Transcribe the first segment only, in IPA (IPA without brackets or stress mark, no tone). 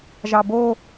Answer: ʒ